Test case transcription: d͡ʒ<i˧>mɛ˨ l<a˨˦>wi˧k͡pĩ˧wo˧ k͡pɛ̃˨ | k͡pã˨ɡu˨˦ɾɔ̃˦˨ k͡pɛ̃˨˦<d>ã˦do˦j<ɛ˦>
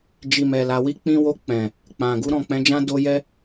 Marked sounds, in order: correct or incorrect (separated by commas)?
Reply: incorrect, incorrect, incorrect, correct